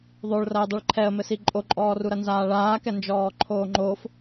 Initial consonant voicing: voiced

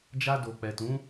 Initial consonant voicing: voiced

